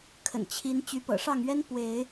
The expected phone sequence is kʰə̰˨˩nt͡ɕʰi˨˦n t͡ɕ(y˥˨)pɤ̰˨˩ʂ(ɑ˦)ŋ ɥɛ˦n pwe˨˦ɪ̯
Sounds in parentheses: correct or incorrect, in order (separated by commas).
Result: incorrect, incorrect